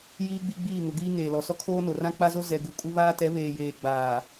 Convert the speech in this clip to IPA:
jiː˦ɡ͡bi˦ɡ͡biː˦˨ ŋʊ˨ɡiː˦ ŋeː˨lɔ˨sɔ˦kʰoː˦ no˨rã˦k͡pa˦zo˦ zɛ˨ɡu˨ kʼu˦βaː˦ tɛ˨˦βeː˨jeː˨ɡ͡baː˨

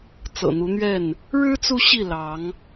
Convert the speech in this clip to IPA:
t͡sɤ̰˨˩n̪u˨˦n̪ɥɛ˥˨n | ɻɻ̩˦ t͡su˦ɕi˥˨ lɑ˨˦ŋ

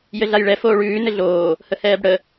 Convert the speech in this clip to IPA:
jɘɮajɭɛ foːɭʉː nɘɮoː | həhɛːbɽə

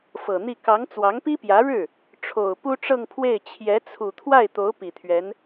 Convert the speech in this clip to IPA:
fɤ˨˩n̪i˥˩ kɑ˧˥ŋ t͡swɑ˧˥ŋpi˥pjä˧˥ɻɻ̩˥˩ | ʈ͡ʂʰo˨˩ʊ̯ pu˥ʈ͡ʂɤ˥˧ŋpʰwe˥˩ɪ̯ t͡ɕʰjɛ˧˥t͡sʰu˨˩ t̪ʰwa˥˩ɪ̯t̪o˧˥ʊ̯ pi˨˩t̪ʰɥɛ˧˥n

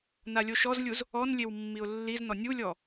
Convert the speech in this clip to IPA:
nalʲoʃɔzlʲuz | ɔnlʲew mːiʊ̯lːiznɔ nʲulʲɔ

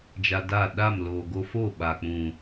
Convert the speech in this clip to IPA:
d͡ʒa˧da˦˨ ɗa˦˨mloː˨ ɡo˧fo˦˨ ɓa˨k͡pũ˨

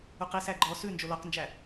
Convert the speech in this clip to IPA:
uqisæ ɡ͡ǃɔ sʉnd͡ʒo lɔqnd͡ʒæ

